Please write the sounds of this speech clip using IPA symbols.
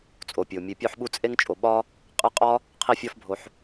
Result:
t͡sʼ o˩ pʲ o˩ mʲ e˨ pʲ o˦ ħ ɓ u˦ t͡sʼ e˥ ŋ t͡ʃʼ o˨ ɓ ɒ˥ | qʼ e˦ qʼ ɒ˥ | qʰ i˦ fʲ ɒ˦ f bʱ o˨ ħ

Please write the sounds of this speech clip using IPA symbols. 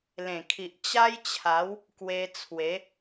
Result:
l ẽ˨˩ kʰ i˨ ʔ t͡ɕ a˦ j t͡ɕʰ a˨˦ w | k w e˧ t͡sʰ w e˨˦

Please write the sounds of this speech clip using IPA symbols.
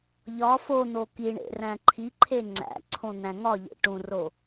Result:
ʎ ɒ f o n̪ o k i ɳ ḛ r æ̃ ǃʰ i ǃʰ e ŋ͡ǀ æ̰ ǀʰ õ n̪ æ̃ ŋ ɒ ʎ ḛ ʈ ũ r o

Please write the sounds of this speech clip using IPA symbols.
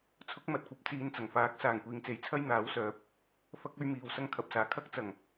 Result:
t͡sʰ ʊ˨˥ k̚ m ɐ˨ t̚ kʷ ɐ˨˥ p̚ t͡s iː˨˧ n t͡s ɐ˨˩ ŋ f aː˨˥ k̚ s aː˨ ŋ kʷ iː˨ ŋ t͡s e˨˥ j t͡sʰ ɐ˥ j n̪ aː˨˥ w s œː˨˥ p̚ | f ɐ˥ k̚ ɵ˧ ɥ m iː˨˩ w s ɐ˧ ŋ kʰ ɐ˨ p̚ s aː˨˩ kʰ ɐ˥ k̚ t͡s ɐ˨˩ ŋ

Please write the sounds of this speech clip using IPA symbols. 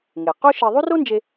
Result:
ŋ e˩ q o˥ ʃ e˧ ðˤ u˥ r o˥ n d͡ʒ e˧

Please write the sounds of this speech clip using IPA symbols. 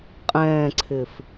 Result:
qʼ ɛ̃ː ǀʰ ɪː f

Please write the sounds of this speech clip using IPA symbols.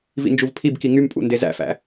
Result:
v ḭ n d͡ʒ u v pʰ i b k i ŋ y m pʼ ṵ n d e z æ̰ f æ̰

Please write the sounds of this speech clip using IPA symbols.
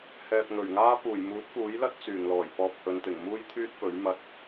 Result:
h ɛː˨ p̚ ŋ ɵ˨˩ ɥ ŋ aː˥ p uː˨˩ j m uː˨˥ t̚ f uː˨˥ j l ɐ˥ t̚ t͡s yː˨˩ ŋ l ɔː˨˩ j p ɔː˧ p̚ h ɵ˨˧ n t̪ ɪ˨˩ ŋ m uː˥ j t̪ʰ yː˥ t̚ p ɵ˨˥ ɥ m ɐ˧ t̚

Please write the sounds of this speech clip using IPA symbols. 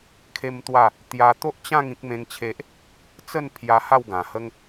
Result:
kʰ e˦ m t̪ w a˥˧ | t̪ j a˧ t̪ o˦ ʔ t͡ɕ ã˥˧ ŋ ĩ˦ k̚ m ẽ˦ ŋ t͡ɕʰ e˦ ʔ | t͡s ə˥˧ n pʰ j a˧ h a˥˧ w ɡ ã˨˩ h ə˦ ŋ

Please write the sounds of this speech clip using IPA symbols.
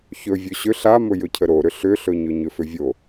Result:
ç ɵ vʲ ɵ ɕ ʏ ɬ a m ɵ j ɵ cʰ ə ɾ o ɾ ʏ ɬ ʏ ɬ ɵ ɲ ɵ ɲ ʏ f ʏ vʲ o

